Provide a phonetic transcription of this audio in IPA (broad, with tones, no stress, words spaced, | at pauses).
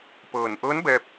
pɤː˧˩n ʔɤː˧˥n bɛː˧p̚